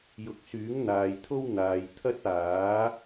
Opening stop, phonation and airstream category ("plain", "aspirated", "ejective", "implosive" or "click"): plain